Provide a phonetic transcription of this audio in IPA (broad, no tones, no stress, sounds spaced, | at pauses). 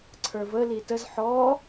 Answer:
ǀʰ ə˞ v ə l i t ə z ħ ɔ